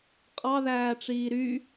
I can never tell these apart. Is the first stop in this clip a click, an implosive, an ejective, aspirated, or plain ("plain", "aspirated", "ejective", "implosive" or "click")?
ejective